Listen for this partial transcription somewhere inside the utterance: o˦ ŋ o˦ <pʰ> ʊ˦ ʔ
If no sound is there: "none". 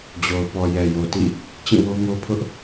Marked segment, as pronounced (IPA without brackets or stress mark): pʰ